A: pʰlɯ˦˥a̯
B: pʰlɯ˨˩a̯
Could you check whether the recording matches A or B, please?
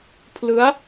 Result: A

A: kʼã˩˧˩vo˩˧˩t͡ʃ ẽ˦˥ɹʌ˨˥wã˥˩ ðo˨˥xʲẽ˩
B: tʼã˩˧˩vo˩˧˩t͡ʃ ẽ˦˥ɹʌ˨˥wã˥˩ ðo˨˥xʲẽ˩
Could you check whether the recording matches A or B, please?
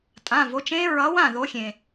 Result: B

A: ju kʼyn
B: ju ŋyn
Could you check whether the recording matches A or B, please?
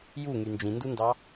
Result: B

